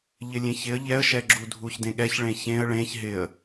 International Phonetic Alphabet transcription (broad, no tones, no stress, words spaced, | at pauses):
ʎɪlʲẽçɪə̯ ʎɛə̯ʃɛɡ͡ǁu dʱuçdẽɠɛç ɭẽçẽə̯ ɭẽç ɦɪə̯